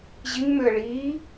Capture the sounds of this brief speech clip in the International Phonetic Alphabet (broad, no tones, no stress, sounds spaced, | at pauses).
ʑ i ŋ m ø ə̯ ɭ iː